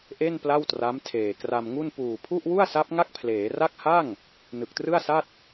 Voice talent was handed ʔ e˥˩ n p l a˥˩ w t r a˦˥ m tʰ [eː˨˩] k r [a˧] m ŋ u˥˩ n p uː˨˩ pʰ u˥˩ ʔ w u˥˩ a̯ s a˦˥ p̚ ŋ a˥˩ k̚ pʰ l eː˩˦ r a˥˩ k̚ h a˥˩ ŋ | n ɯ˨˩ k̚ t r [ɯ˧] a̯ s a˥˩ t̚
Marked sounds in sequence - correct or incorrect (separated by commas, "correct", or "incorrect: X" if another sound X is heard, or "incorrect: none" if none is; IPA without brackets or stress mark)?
correct, correct, incorrect: ɯ˥˩